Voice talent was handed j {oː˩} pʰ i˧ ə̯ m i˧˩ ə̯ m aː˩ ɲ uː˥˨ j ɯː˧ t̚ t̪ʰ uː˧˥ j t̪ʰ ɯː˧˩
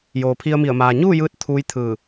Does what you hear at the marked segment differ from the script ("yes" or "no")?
no